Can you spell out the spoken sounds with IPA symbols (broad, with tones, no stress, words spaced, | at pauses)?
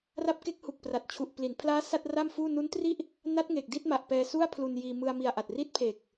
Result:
ra˦˥p̚ke˦˥k̚hu˨˩k̚pra˨˩t̚ t͡ɕʰu˨˩ʔpli˩˦npʰlaː˦˥ sa˥˩t̚ra˥˩mfuː˥˩ nu˦˥ntri˥˩ʔ | na˦˥t̚ ŋe˨˩k̚di˥˩t̚ma˨˩ʔ pɛː˧su˥˩a̯pʰlu˧n jiː˧mɯ˧a̯mi˧a̯ʔa˨˩t̚ ri˦˥t̚pʰe˨˩k̚